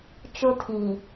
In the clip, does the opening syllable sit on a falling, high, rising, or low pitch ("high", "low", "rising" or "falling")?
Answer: high